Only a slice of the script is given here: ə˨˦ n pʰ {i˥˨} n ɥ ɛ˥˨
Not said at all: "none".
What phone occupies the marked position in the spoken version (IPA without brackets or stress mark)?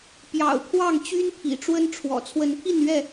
i˥˨